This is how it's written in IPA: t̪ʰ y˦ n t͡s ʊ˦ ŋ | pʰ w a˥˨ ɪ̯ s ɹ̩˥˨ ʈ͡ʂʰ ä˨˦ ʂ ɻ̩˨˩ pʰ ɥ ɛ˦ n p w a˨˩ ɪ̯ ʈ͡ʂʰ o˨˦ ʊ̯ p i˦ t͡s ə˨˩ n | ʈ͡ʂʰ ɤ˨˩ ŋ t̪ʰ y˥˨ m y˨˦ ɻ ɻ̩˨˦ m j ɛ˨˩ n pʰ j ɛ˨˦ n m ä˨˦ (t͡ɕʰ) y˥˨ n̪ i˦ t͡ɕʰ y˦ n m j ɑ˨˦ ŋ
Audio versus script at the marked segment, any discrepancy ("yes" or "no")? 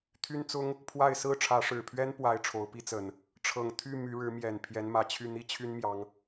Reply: no